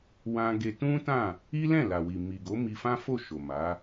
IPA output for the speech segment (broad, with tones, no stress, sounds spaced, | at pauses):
w ã˧ ɡ e˧ t ũ˦ t ã˦˨ | i˦ l ɛ̃˦˨ l a˨ w i˨ m i˨ ɡ o˨˦ m i˧ f ã˦ f o˦˨ ʃ o˨ m a˨˦